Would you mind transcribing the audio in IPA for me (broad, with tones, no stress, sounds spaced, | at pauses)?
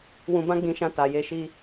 w ũ˧ b ã˦ ɡ͡b ĩ˧ ʃ ã˧ t a˨ j e˧ ʃ i˦